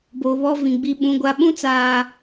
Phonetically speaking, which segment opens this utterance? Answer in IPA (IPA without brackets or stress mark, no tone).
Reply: b